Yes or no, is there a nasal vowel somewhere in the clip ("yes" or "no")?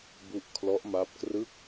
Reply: no